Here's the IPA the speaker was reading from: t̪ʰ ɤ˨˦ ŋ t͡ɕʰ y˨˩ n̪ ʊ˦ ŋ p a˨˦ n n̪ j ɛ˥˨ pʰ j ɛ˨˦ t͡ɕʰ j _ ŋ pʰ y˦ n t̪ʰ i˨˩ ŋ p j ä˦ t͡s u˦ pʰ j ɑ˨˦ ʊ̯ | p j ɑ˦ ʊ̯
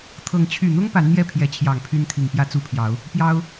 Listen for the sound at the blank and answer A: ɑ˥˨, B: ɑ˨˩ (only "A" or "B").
B